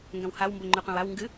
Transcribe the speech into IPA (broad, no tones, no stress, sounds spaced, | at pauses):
ŋ ɡ ɐ̃ w h a w m b o ŋ͡ǃ ʉ qʷ ã w a w ŋ ɡ ɨ